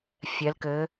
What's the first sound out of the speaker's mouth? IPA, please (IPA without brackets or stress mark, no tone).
fʲ